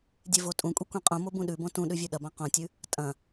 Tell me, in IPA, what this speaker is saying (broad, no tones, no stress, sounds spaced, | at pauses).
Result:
dʲ e v o tʼ ũ kʷʼ i kʷ ẽ qʼ ũ m o b ũ ɗ ʉ b õ t ũ ɗ ʉ vʲ ʉ ɗ ɐ b ã q õ tʲ ʉ | tʼ ɐ̃